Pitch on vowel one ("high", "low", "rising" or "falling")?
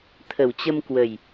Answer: low